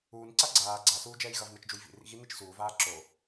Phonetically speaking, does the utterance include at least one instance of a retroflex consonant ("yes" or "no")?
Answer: no